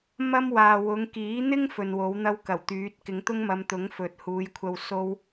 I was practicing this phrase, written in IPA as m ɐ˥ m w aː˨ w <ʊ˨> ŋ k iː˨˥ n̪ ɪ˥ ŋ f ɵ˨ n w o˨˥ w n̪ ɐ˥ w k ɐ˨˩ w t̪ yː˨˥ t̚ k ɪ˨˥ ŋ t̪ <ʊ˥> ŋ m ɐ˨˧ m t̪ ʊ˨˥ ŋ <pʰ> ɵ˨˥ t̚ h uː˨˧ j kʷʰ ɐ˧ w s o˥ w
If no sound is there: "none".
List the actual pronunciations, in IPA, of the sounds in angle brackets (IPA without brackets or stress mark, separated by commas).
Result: ʊ˨˧, ʊ˥, f